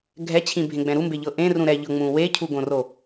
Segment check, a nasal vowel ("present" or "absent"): present